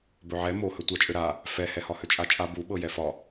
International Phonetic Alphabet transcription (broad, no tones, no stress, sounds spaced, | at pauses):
b ɵ ʕ ɛ m o h ɵ tʷ a t͡ʃʼ ø ɾ a | f ɛ h ɛ h ɒ h ø t͡ʃʼ a t͡ʃʼ a b u ɓ ɤ j ɛ f ɒ